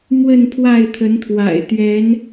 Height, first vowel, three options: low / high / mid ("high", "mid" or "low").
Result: mid